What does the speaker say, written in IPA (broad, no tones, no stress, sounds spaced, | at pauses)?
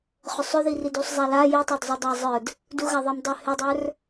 χ ʏ sˤ ʏ ð i r i d u sˤ zˤ a l a j i tˤ ə˞ d zˤ u dˤ a zˤ ə˞ d | d u ɣ a ðˤ i m dˤ œ h ʏ dˤ ə˞ r